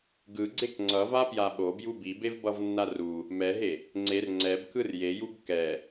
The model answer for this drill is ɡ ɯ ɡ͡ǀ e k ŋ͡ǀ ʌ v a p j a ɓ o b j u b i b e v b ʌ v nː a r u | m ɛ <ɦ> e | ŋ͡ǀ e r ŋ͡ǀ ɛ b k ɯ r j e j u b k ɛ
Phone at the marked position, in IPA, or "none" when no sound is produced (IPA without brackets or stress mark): ɦ